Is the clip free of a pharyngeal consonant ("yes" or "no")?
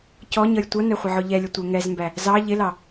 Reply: no